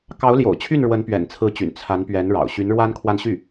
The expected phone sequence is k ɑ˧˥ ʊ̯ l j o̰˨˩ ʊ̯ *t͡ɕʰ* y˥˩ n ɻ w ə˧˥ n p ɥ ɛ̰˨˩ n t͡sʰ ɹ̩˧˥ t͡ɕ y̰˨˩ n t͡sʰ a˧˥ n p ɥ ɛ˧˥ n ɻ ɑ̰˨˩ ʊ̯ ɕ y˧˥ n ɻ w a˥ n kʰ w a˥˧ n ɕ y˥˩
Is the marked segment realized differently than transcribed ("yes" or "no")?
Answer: no